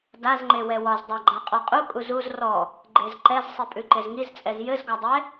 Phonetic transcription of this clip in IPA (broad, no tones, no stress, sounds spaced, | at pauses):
d a z ŋ͡ǃ e w ɛ w ɒ z dˤ a ɡ͡ǃ a qʼ ɔ qʼ u kʼ u z u z r ɔ | ɡ͡ǃ e z ǃ ɛ z sˤ i pʼ ʉ ǃ e z ŋ i z t͡sʼ ɛ z j ɘ z ɡ ɒ dˤ ɛ